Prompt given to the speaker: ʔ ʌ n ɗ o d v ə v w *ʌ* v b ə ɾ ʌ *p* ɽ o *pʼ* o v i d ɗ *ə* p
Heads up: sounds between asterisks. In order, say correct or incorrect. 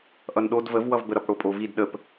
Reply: correct, correct, correct, correct

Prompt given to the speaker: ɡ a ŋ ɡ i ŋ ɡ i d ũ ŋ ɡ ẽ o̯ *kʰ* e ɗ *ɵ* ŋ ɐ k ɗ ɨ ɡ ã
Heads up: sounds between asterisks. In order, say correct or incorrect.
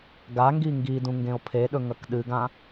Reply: incorrect: pʰ, correct

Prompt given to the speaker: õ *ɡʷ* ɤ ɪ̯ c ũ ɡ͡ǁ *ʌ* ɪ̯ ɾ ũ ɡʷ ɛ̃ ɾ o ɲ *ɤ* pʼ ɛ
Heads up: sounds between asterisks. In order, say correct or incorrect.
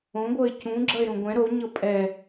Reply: correct, correct, correct

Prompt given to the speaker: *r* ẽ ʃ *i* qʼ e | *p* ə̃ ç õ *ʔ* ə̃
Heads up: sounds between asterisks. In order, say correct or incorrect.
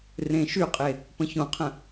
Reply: correct, incorrect: y, correct, incorrect: qʰ

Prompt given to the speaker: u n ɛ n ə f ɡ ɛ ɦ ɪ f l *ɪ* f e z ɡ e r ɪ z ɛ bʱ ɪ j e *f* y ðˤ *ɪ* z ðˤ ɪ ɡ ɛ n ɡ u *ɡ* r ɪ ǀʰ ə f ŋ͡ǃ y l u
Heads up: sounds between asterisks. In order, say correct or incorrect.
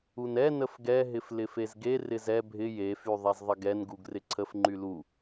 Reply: correct, correct, incorrect: ɛ, correct

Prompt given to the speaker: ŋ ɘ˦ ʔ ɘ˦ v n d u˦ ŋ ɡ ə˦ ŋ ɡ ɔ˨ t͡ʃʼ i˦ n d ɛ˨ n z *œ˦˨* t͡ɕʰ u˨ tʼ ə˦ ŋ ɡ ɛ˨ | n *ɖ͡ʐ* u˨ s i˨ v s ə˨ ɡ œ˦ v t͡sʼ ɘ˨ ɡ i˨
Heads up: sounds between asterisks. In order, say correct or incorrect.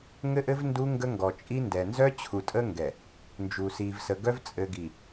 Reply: incorrect: œ˦, incorrect: d͡ʒ

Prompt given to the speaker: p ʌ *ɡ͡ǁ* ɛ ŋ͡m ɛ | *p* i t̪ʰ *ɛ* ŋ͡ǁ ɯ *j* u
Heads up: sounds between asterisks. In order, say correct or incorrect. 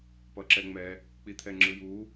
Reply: incorrect: ǁ, incorrect: k͡p, correct, correct

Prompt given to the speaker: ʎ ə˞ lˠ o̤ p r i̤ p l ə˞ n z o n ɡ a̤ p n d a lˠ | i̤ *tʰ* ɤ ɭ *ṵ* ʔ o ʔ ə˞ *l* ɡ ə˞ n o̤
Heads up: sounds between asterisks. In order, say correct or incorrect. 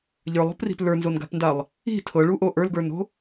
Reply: correct, incorrect: u, correct

